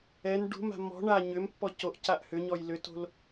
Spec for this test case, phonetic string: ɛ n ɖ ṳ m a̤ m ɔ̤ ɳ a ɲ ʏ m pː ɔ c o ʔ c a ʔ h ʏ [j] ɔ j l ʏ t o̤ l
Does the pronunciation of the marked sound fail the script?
yes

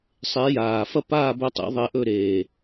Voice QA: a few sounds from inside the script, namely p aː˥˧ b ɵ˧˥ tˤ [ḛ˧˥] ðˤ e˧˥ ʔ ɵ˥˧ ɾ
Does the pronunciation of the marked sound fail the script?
no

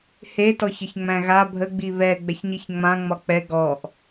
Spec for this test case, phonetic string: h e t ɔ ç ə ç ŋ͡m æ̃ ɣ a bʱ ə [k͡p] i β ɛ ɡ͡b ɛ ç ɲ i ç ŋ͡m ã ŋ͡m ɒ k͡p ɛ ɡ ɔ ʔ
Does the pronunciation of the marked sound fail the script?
yes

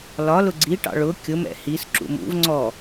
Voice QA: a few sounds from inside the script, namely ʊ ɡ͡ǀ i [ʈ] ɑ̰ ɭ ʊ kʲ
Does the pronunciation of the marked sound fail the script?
no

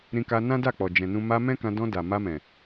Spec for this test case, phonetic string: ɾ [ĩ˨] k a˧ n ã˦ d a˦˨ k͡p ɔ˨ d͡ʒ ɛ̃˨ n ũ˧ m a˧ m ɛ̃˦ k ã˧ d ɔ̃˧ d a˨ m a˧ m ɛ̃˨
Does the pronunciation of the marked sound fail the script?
yes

